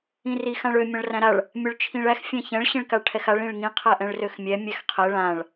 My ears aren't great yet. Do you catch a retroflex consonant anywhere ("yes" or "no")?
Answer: yes